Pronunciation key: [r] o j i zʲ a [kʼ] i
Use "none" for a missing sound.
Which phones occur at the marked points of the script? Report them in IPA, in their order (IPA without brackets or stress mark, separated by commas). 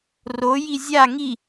r, ŋ